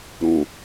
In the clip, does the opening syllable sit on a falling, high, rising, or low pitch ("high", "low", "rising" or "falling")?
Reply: low